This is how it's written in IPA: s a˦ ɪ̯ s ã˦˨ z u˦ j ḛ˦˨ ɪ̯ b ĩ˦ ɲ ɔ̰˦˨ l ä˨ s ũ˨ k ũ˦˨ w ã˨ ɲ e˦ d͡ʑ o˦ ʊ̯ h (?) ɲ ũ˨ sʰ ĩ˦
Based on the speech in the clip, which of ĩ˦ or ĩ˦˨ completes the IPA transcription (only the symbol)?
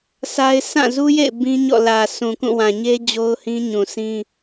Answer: ĩ˦